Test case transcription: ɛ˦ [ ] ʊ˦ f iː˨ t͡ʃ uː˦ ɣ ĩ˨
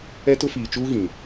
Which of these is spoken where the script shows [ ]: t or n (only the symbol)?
t